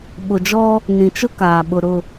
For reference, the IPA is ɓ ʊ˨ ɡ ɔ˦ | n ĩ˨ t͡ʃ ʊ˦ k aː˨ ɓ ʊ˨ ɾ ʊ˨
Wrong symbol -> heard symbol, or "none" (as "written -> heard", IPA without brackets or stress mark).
ɡ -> d͡ʒ